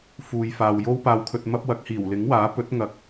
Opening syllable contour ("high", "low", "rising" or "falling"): low